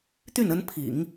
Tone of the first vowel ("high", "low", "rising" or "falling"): falling